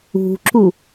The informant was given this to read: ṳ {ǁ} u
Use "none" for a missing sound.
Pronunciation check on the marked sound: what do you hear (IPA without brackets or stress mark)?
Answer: ǁ